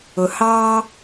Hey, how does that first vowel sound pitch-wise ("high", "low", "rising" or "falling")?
low